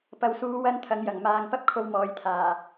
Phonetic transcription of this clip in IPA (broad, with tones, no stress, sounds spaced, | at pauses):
p ɐ˨ w s uː˨˧ w ɐ˥ n t̪ʰ ɐ˨˧ ŋ j ɐ˨˩ ŋ m aː˨ ŋ p ɐ˥ p̚ kʰ o˧ w m ɔː˨˧ j t̪ʰ aː˨˩